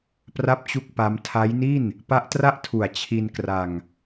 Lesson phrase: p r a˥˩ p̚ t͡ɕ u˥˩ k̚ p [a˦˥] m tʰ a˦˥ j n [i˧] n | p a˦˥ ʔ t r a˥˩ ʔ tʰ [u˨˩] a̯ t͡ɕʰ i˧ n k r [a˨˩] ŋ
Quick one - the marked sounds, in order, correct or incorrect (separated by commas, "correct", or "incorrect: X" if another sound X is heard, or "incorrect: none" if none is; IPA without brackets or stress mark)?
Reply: correct, incorrect: i˥˩, correct, incorrect: a˧